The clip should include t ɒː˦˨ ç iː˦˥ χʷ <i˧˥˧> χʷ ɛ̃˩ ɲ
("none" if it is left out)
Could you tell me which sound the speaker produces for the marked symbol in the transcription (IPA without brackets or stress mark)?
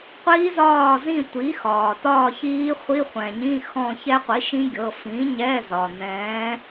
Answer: i˧˥˧